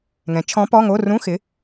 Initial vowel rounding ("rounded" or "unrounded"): unrounded